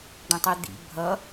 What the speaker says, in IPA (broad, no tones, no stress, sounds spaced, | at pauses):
ɖ ə̃ tˤ i d̪ ḭ bʱ ʌ